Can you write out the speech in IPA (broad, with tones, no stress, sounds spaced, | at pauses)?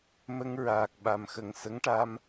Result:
m ə˧ ŋ ɹ aː˨˩ k̚ ɓ a˨˩ m x ə˨˩ ŋ s ə˧˥ ŋ ʈ a˧ m